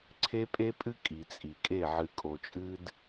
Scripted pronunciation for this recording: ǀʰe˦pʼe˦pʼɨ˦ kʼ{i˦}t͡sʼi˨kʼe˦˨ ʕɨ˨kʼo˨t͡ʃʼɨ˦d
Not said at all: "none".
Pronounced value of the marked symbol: i˨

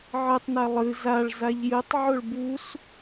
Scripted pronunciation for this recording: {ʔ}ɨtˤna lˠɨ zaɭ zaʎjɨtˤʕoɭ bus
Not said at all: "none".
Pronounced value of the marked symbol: ʕ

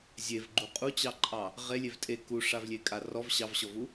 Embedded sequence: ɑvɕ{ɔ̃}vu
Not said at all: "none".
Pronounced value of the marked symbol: ɔ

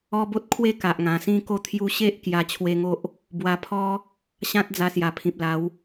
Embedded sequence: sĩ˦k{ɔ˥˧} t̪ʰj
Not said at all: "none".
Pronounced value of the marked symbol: o˥˧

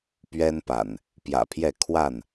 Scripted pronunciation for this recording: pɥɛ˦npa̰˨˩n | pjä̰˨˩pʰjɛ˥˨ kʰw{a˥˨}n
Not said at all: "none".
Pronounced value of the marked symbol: a˥˨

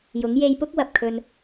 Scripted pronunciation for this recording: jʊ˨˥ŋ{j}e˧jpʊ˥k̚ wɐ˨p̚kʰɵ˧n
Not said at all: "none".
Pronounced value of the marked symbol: j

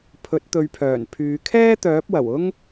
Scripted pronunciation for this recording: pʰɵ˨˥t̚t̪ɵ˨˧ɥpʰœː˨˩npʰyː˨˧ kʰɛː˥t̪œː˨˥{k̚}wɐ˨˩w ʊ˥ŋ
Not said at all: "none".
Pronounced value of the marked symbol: p̚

